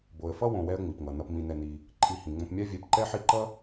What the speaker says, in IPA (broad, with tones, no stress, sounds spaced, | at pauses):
b o˩ ə̯ f ʌ˦ w õ˨ w ɛ˦ ə̯ ŋ͡m i˩ p ŋ ʌ˩ n ʌ˨ p m ĩ˨ n ɛ˨ n i˨ | ǃʼ i˨ h ĩ˩ ŋ͡m õ˨ p mʲ a˦ vʲ ɛ˨ p ǃ ɛ˦ ħ i˦ ǃ ʌ˥